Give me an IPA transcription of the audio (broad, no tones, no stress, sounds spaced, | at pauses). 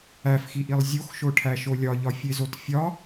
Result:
æ f x i ʔ i lˠ zʲ o x ʃ o ʈʰ æ ʃ o lʲ ɒ ʎ ɒ fʲ e z o t fʲ ɒ